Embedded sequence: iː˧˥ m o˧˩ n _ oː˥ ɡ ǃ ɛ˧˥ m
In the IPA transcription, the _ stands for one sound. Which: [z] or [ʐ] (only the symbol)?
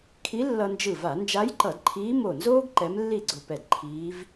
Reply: z